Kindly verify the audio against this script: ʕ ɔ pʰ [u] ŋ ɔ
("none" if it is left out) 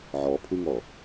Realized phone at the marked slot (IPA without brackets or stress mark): u